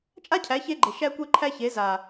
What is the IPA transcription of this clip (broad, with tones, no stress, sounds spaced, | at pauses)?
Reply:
t͡ʃʼ a˦ cʰ æ˨˦ ç e˦ ɡ͡ǃ e˨ ʃ æ˦ kʷ e˦ ǃʰ æ˦ ç e˨˦ z a˨